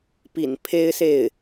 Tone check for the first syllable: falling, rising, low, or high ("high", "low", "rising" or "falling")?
low